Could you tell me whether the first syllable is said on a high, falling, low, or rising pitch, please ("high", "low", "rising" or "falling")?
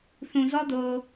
low